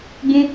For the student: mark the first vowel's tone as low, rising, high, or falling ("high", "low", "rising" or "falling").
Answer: high